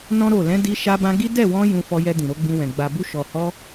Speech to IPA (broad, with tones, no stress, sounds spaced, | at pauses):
n ɔ̃˦ ɾ o˦˨ l ɛ̃˨˦ d i˧ ʃ a˧ b ã˧ ɡ i˦ d ɛ˦˨ w ɔ̃˧ j ũ˧ f ɔ˧ j ɛ˧ d ĩ˨ ɾ o˧ ɡ͡b ĩ˧ w ɛ̃˨ ɡ͡b a˨ b u˧ ʃ ɔ˨ h ɔ˧